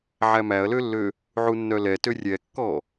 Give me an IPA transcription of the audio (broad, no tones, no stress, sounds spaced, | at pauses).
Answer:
ʕ æ m æ ɐ̯ l ø lː ø | ʕ u nː œ l ɛ t ø rʲ ɛ kː ɔ